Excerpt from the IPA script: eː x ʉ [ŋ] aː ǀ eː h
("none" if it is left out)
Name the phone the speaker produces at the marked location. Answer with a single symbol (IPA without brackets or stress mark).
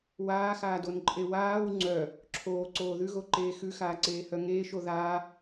x